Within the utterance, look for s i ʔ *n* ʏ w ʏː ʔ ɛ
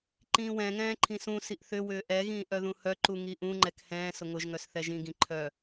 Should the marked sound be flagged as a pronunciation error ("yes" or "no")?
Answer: yes